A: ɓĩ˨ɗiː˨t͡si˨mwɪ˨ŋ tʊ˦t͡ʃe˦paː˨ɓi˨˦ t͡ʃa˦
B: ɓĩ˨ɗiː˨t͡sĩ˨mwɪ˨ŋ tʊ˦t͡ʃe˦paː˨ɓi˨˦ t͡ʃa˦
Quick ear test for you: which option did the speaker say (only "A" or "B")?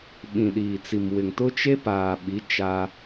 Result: A